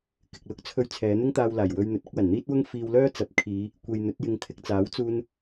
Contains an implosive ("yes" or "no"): no